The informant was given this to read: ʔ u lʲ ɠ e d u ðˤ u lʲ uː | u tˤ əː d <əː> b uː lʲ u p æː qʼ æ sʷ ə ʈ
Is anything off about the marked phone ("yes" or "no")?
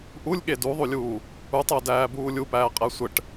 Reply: yes